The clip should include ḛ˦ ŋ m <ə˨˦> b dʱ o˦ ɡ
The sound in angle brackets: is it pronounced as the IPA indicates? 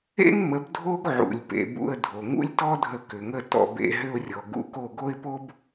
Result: yes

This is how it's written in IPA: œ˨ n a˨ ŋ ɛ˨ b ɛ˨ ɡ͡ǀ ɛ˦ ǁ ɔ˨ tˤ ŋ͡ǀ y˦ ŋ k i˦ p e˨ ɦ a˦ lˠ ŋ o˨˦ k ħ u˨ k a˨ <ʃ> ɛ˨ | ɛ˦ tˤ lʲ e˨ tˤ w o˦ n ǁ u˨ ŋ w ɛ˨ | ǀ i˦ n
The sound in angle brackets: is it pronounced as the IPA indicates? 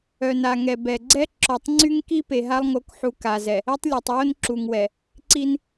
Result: no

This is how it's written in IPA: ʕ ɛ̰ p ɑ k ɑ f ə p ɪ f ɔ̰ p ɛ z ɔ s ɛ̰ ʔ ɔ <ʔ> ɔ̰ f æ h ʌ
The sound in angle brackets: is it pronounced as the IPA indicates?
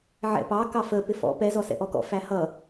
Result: no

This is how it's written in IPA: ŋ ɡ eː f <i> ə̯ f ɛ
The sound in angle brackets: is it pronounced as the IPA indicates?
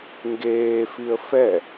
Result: yes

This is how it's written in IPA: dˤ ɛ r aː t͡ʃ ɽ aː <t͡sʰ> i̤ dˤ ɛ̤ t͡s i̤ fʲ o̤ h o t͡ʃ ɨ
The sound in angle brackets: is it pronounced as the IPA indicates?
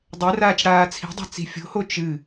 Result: yes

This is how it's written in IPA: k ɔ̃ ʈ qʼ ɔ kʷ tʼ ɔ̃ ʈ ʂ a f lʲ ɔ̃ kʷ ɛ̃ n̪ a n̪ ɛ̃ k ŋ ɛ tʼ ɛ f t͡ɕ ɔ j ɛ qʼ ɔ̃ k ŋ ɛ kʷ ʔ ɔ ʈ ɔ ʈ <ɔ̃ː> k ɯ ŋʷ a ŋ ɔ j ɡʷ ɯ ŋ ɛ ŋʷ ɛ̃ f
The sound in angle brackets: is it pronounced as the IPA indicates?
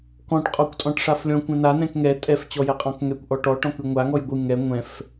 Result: no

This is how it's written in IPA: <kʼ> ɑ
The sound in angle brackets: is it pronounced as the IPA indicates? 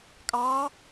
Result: yes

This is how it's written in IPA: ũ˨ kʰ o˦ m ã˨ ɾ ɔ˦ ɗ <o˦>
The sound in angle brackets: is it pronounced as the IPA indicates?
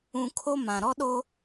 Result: yes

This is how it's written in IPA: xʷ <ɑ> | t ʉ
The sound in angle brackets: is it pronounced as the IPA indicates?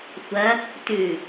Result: no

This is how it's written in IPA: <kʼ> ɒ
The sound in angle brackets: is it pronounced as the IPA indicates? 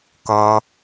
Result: no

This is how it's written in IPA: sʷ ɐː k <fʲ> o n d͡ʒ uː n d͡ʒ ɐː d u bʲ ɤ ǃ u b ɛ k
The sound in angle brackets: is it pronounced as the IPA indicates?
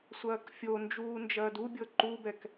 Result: yes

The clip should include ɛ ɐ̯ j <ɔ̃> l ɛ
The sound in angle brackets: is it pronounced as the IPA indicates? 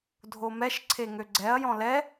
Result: yes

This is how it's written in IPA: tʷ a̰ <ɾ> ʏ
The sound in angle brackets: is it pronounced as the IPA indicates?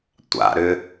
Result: yes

